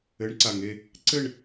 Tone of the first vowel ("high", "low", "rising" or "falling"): rising